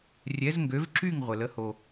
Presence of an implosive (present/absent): absent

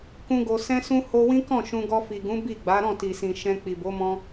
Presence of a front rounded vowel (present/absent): absent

